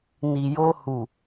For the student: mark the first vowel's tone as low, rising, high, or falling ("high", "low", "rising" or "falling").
low